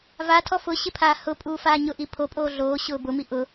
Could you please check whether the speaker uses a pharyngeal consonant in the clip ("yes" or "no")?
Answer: no